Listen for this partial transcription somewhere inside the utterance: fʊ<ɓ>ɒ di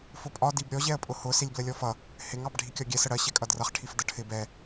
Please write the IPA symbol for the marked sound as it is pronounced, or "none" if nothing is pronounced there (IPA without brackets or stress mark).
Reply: pʼ